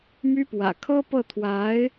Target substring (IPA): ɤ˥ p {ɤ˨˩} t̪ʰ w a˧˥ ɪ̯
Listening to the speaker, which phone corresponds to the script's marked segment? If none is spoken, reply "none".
ɤ˥˩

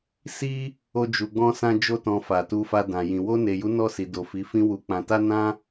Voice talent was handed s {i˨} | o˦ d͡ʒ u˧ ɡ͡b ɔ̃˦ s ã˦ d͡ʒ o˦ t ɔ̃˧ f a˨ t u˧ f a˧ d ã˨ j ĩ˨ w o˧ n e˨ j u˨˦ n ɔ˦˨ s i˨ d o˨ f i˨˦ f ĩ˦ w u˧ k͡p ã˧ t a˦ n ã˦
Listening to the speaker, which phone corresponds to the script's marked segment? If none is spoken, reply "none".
i˦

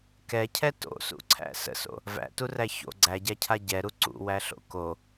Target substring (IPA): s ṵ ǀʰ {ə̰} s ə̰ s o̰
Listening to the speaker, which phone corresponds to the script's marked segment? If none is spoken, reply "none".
æ̰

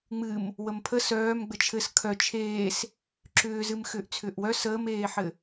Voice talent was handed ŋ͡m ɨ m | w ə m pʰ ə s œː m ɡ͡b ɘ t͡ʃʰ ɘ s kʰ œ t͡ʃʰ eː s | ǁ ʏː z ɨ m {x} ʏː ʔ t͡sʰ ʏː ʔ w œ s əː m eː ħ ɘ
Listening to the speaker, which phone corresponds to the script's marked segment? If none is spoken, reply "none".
x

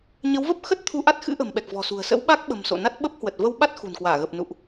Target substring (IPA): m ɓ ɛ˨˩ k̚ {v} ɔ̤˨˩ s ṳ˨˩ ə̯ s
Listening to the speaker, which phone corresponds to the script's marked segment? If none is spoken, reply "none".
v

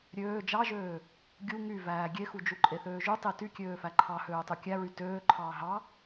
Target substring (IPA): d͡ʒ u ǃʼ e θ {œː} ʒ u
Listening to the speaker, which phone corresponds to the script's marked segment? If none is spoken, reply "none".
øː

